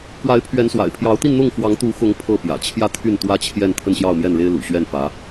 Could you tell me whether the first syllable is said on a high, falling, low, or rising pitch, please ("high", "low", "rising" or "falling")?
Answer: rising